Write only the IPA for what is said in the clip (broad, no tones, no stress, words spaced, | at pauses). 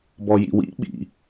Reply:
bɔjḭwḭ ɓḭ